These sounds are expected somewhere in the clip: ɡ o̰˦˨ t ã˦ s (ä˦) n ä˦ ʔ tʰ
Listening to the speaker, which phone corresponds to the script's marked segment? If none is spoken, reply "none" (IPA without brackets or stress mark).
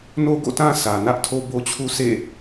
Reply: ä˨